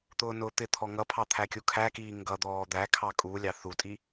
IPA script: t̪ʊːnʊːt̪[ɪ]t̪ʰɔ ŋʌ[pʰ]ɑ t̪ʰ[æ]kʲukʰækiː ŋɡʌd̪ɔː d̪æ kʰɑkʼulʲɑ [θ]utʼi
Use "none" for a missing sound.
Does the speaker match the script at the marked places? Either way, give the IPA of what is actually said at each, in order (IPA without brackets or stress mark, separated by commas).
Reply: ɪ, pʰ, æ, θ